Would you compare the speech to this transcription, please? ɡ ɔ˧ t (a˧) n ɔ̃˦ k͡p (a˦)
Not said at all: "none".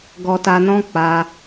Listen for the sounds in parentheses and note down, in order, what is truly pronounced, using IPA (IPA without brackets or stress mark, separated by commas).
a˧, a˦